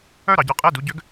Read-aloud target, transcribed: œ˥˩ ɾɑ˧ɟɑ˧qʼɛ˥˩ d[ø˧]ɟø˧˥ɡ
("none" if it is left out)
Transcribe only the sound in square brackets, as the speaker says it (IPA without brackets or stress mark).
u˧